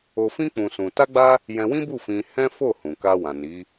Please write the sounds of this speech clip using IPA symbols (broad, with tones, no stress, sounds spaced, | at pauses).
o˧ f ĩ˦ k͡p ũ˧ s ũ˧ t a˦ ɡ͡b a˦ | j ɛ̃˧ w ĩ˦ b u˦˨ f ĩ˧ h ɛ̃˦ f o˦˨ h ũ˨ k a˧ w ã˨ n i˨˦